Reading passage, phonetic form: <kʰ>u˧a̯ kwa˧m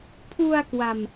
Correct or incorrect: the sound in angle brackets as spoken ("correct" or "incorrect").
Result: incorrect